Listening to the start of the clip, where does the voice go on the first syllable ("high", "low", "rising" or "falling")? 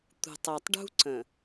low